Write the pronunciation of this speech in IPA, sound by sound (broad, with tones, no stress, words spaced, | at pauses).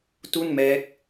tu˥˩nmɛː˦˥k̚